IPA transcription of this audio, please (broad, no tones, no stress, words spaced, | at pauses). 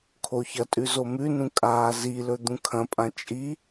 kʰoçɐtʼʉ zomʉnũ kʼaːzilɵ d̪ũkʰɐ̃pʼã t͡ʃʼi